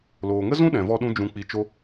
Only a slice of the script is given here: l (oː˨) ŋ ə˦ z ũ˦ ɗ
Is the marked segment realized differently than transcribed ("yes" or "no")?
no